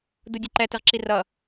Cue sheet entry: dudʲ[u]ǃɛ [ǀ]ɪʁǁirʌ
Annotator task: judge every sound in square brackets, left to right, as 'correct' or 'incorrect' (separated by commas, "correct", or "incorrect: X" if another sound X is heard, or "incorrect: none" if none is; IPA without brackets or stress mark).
incorrect: ʊ, incorrect: t